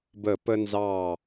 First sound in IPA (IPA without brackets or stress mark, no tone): b